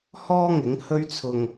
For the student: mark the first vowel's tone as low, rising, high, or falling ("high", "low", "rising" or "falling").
high